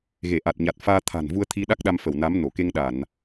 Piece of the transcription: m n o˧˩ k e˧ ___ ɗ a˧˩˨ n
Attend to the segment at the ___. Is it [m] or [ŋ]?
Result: ŋ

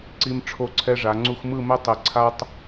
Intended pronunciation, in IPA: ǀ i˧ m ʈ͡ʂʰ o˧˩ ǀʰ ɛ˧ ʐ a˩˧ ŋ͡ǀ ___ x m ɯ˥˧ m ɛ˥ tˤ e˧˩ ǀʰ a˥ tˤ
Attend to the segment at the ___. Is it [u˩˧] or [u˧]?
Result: u˧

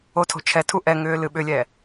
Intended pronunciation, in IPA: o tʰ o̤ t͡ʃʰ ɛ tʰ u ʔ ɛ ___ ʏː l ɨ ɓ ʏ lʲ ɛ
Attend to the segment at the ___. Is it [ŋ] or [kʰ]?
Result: ŋ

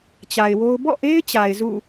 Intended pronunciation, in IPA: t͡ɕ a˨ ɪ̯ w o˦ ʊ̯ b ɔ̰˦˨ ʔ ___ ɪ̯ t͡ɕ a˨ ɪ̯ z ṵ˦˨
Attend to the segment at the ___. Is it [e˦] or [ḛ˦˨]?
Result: e˦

